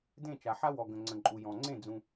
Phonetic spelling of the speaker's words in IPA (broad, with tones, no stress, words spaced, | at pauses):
dẽ˦˨t͡ʃa˨ ħa˦wɔ˨ ɡə̃˨ŋ͡ǀə̃˨ǃʼu˨jɔ̃˨ ŋ͡ǀẽ˦˨ d͡zũ˦